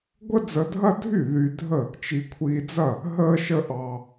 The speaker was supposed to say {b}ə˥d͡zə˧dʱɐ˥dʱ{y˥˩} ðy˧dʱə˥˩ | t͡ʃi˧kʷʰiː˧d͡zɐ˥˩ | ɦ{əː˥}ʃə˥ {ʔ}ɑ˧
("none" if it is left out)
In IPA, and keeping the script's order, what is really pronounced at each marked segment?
ɡʷ, y˥˩, əː˥, ʔ

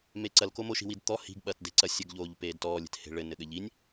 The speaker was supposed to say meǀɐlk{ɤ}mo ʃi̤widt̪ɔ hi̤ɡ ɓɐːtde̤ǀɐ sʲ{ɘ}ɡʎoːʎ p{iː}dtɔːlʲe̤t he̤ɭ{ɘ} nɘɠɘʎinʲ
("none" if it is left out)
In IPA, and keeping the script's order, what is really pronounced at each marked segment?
o, ɘ, eː, ɘ

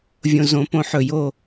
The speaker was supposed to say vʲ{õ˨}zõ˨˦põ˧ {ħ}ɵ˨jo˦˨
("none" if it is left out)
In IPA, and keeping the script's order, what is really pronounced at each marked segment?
õ˨, ħ

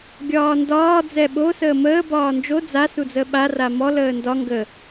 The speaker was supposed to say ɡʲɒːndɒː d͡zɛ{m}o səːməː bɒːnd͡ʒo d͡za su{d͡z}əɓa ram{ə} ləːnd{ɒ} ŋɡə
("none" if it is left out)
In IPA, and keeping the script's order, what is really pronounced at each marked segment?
ɓ, d͡z, ɔ, ɒ

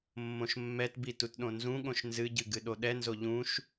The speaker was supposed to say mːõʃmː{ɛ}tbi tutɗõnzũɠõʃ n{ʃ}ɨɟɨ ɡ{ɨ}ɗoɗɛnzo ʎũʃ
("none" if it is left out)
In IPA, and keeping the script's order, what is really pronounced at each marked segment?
ɛ, z, ɨ

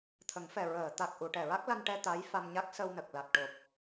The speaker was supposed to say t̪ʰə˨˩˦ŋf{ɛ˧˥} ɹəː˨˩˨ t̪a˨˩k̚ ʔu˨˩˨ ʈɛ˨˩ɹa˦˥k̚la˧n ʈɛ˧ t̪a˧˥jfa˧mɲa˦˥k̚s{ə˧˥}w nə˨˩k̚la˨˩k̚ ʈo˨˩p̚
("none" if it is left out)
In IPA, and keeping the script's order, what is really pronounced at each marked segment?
ɛ˨˩, ə˧

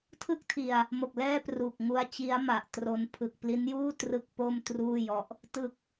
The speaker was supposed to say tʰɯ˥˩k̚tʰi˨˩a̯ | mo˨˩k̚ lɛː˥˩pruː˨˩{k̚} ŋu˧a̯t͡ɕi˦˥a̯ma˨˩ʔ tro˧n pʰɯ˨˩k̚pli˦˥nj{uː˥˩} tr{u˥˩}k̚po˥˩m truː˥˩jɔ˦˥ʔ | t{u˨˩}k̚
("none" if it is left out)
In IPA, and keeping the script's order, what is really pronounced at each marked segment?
k̚, uː˥˩, ɯ˥˩, ɯ˨˩

